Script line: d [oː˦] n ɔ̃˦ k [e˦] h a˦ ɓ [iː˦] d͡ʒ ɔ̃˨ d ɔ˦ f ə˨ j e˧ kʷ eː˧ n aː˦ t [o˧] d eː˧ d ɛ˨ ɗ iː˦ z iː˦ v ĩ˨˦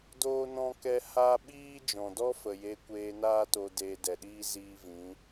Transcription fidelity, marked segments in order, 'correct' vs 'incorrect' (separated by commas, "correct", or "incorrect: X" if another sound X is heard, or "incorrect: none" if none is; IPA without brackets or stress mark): correct, incorrect: ɛ˦, correct, correct